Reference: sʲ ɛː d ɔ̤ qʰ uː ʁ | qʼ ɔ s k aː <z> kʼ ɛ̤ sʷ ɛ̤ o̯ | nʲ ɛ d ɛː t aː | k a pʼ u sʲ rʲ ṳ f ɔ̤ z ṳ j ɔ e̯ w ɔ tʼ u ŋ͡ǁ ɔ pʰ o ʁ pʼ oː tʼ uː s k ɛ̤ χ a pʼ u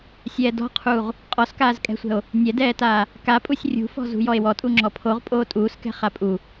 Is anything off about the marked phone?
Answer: no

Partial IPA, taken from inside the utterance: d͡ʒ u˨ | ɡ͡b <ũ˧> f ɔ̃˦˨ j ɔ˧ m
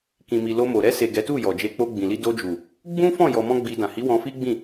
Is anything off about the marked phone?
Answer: yes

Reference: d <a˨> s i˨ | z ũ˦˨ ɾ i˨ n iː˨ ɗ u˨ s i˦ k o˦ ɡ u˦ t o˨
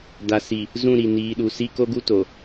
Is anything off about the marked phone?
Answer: no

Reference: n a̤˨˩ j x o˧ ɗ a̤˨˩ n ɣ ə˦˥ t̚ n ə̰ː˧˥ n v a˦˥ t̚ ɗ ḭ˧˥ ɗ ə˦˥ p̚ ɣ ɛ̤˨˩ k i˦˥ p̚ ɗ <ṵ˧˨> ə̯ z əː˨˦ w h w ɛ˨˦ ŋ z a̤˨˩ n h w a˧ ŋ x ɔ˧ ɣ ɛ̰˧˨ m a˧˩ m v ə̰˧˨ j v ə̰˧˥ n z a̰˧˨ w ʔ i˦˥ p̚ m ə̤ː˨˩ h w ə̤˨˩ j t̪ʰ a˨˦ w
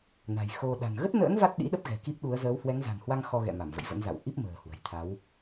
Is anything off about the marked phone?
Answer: yes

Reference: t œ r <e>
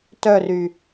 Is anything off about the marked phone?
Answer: yes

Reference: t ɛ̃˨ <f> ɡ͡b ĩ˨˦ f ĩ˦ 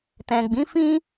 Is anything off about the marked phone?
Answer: yes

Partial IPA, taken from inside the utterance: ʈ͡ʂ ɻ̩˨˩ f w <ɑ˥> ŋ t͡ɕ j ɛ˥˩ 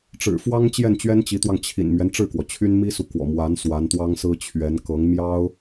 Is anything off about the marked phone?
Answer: no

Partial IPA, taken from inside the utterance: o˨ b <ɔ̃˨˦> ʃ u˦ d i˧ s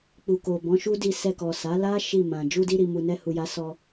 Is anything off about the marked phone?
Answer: no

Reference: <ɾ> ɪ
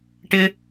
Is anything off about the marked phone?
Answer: yes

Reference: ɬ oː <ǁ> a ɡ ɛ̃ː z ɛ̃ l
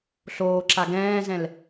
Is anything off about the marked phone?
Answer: no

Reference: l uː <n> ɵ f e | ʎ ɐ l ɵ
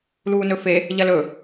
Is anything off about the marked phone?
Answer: no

